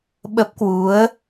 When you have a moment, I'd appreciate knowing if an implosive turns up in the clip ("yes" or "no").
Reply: yes